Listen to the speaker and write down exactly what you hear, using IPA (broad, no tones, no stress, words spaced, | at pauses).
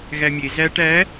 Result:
ɣæmʲe zæʈ æ